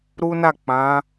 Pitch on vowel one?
high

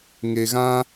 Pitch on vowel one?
low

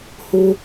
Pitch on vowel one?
high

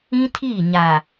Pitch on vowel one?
high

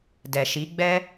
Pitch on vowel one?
low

